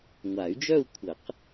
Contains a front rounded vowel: yes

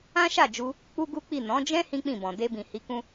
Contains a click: no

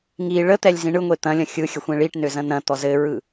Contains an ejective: no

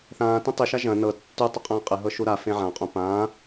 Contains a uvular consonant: yes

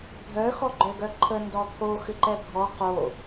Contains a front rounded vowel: yes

